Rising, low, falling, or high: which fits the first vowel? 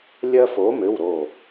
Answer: high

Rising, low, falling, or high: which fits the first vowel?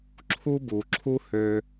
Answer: high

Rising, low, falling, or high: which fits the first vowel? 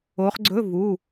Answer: rising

